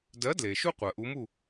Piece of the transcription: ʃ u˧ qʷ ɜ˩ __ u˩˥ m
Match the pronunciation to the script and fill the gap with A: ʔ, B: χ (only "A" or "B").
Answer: A